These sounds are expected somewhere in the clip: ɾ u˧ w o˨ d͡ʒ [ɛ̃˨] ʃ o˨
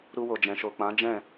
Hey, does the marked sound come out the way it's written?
yes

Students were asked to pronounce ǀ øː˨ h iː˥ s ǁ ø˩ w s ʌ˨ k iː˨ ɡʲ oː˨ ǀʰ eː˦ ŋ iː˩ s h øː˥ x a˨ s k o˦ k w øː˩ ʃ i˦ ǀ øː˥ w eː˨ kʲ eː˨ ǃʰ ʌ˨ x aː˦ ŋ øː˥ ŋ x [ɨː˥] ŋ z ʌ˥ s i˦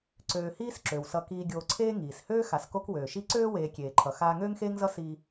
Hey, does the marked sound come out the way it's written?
no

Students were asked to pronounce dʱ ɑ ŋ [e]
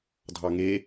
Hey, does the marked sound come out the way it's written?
yes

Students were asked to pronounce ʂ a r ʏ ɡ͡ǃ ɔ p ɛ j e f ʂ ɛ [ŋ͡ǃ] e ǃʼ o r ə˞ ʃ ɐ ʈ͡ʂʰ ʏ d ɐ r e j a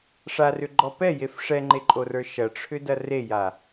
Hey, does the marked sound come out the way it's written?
yes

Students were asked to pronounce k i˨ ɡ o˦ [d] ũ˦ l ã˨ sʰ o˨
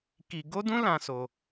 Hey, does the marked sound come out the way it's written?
yes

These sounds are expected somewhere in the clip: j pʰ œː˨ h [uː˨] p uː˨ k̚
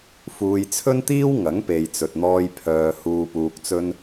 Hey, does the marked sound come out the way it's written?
yes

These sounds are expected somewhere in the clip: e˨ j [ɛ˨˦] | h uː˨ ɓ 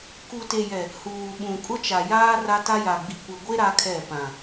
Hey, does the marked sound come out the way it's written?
no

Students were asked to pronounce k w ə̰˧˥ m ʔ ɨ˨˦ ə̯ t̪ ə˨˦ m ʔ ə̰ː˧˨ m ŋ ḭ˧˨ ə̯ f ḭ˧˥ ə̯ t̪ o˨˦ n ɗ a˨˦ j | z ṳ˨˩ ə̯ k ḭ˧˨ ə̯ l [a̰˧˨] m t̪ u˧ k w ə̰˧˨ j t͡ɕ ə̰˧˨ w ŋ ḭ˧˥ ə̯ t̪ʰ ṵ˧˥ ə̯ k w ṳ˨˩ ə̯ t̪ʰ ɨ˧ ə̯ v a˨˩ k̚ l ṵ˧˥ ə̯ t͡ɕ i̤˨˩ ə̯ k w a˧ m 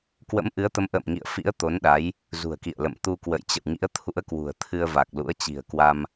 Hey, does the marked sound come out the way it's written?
no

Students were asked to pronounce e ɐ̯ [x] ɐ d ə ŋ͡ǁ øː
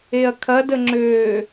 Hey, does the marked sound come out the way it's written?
no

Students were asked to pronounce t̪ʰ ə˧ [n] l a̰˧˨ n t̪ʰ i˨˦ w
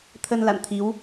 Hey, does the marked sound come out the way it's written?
yes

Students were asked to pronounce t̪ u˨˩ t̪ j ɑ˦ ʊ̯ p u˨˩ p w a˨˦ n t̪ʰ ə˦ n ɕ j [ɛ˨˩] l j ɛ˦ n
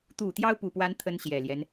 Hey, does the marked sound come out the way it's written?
yes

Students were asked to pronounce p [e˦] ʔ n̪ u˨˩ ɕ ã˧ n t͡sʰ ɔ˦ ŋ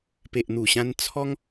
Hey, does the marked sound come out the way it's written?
no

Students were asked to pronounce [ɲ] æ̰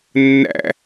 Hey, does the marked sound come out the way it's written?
no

